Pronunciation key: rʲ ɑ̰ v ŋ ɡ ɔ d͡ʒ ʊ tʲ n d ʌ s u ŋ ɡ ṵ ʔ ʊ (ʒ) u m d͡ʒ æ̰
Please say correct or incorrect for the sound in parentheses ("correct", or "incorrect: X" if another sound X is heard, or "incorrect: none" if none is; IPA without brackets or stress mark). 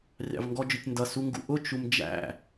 incorrect: t͡ʃ